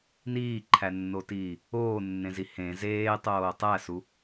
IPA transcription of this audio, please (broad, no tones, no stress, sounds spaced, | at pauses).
n iː ǃʰ æ nː o t iː | oː nː ẽ z i h ẽ z eː tˤ oː tˤ æ s u